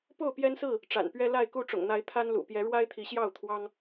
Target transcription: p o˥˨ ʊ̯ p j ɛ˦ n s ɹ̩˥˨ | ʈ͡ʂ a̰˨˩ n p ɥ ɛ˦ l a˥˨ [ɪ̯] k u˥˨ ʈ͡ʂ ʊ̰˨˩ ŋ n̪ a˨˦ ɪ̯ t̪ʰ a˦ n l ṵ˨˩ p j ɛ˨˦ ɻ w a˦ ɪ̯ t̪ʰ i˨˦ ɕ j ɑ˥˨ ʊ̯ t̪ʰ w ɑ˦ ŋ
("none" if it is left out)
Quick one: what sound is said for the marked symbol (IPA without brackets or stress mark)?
ɪ̯